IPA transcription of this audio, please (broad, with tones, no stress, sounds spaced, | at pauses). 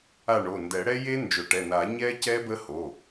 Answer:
a˦˨ ɳ o˩˧˩ n d ɛ˨˩˦ ɽ ɛ˦˥ j e˦˥ n d͡ʒ ʊ˨˩˦ ʈ ɛ˩˧˩ n a˨˩˦ ɲ ɛ˦˥ c ɛ˦˥ b ə˦˥ h o˩˧˩